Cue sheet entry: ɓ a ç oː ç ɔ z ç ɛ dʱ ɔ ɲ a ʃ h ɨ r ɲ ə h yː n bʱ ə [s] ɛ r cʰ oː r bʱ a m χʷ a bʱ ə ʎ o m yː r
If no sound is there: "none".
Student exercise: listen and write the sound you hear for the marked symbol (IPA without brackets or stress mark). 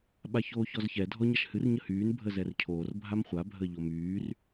z